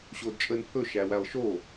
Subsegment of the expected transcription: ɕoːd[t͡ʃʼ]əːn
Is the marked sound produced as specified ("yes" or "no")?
yes